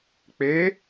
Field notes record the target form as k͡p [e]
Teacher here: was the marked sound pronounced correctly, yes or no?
yes